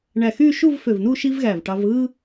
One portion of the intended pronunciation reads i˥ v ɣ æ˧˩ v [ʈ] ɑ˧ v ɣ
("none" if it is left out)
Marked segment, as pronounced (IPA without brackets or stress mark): ʈ